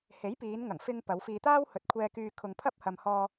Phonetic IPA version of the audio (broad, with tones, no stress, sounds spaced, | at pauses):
h e˨˥ j p iː˨˧ n ŋ ɐ˨˩ ŋ f ɪ˧ ŋ p ɐ˨˧ w f iː˧ t̪ aː˥ w h ɵ˨˥ t̚ kʷʰ ɛː˧ k yː˧ kʰ ʊ˧ ŋ pʰ ɐ˥ p̚ h ɐ˧ m h ɔː˧